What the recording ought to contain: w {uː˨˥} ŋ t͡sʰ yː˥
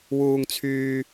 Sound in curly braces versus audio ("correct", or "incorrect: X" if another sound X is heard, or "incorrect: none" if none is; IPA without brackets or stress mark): incorrect: uː˥